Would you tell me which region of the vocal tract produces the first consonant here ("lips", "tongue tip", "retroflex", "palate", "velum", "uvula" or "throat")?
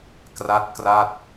velum